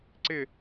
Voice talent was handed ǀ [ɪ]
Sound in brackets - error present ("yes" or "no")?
no